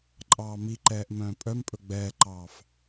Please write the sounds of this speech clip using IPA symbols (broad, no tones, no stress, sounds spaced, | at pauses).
ǃʼ ɑː m i ǃ ɛː ʔ m œ̃ː pʼ œ m pʼ ɵ ɡ͡b ɛː ǃ ɑː f